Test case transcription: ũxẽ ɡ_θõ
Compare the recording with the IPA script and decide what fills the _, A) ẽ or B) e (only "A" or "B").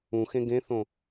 A